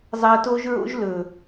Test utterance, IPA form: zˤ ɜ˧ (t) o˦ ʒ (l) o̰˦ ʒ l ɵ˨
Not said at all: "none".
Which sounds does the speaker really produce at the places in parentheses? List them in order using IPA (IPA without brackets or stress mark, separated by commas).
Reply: t, ɹ